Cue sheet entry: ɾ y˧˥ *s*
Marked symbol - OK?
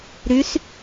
yes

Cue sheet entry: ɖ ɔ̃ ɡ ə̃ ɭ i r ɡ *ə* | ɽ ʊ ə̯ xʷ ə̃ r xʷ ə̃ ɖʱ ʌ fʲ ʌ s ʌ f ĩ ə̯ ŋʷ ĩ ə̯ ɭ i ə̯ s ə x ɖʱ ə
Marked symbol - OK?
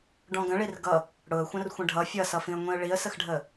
no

